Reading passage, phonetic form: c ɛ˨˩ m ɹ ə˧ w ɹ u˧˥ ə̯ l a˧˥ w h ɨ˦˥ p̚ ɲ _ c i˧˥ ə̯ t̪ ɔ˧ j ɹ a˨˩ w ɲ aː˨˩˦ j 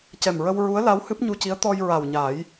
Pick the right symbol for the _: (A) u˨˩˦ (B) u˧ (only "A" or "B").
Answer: B